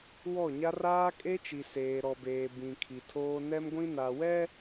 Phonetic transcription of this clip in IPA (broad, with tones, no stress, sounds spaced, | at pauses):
w ɔ˦˨ ɲ a˦ r aː˦ kʼ e˦ t͡ʃ i˨ s eː˨ ɾ ɔ˨ b eː˨ b ĩ˨ kʰ i˨ tʰ oː˦ n ɛ˦ m ɡʷ ĩ˦ n a˨ w ɛ˦